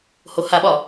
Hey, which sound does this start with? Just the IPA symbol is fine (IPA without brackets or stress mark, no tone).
h